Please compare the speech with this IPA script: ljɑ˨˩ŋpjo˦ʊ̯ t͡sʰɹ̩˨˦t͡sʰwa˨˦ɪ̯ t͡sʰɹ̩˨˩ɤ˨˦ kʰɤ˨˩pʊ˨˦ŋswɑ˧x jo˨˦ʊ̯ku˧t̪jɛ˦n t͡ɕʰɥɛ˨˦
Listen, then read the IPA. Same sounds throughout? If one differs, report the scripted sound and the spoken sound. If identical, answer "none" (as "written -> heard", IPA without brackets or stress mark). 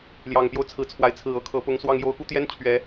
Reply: x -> ŋ